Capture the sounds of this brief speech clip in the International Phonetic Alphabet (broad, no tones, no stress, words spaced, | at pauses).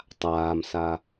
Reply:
tˤaːmsa